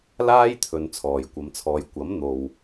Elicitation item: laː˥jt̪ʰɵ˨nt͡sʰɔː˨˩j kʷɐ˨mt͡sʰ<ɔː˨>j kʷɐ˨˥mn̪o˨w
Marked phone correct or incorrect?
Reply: correct